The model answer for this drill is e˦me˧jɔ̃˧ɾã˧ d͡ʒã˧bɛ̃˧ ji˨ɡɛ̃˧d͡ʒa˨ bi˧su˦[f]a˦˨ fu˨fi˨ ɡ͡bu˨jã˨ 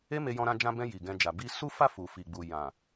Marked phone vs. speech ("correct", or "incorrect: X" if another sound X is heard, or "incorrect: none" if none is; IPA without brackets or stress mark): correct